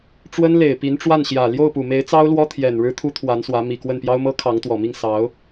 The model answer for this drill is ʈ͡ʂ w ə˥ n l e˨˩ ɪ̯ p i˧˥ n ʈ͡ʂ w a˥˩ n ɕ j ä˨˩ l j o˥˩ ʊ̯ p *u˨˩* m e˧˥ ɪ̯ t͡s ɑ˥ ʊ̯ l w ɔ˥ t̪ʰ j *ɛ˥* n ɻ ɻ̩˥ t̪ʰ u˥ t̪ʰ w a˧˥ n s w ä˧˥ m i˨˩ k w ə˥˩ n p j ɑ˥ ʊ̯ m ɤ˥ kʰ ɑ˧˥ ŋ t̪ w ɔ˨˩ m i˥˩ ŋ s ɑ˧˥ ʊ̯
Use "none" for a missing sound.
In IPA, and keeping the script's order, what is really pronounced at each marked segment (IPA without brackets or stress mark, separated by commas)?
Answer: u˨˩, ɛ˨˩